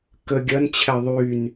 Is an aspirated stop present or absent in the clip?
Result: present